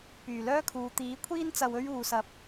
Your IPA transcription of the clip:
p yː˨˩ l œː˥ kʰ uː˨˧ t̪ iː˨˥ kʷʰ iː˥ n t͡s ɐ˧ w ɵ˥ ɥ uː˨ s ɐ˨˥ p̚

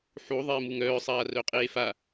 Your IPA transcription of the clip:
ħ u ðˤ eː m u ŋ œː sˤ aː r œ qʼ eː f a

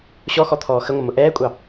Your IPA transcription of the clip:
ɕ ɔ x ɔ t̪ʰ ɔː x ə ŋʷ ə m ʊ ʔ ɛː kʷʼ ɑ

